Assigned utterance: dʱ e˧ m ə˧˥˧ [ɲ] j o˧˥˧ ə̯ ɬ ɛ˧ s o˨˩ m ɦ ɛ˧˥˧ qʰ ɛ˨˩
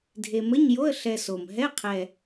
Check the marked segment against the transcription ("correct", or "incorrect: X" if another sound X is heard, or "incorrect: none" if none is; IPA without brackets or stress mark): correct